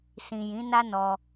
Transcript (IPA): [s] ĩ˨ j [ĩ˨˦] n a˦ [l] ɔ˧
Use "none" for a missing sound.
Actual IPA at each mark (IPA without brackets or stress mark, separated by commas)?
s, ĩ˨˦, n